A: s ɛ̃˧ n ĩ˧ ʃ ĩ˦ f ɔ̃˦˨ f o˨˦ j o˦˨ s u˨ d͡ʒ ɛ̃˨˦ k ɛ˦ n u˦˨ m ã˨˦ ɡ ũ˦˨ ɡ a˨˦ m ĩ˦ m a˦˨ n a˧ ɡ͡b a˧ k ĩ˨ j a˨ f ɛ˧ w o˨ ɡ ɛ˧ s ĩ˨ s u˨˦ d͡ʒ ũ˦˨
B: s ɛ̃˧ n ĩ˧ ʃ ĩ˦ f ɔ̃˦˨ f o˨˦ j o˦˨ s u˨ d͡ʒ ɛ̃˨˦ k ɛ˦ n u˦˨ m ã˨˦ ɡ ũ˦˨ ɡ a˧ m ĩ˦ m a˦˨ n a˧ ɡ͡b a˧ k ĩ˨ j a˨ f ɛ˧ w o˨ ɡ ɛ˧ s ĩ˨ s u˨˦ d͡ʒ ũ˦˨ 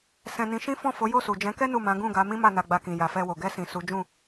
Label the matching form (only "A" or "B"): A